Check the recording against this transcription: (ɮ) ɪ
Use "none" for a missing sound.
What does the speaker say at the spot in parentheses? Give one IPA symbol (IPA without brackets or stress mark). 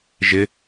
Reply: ʒ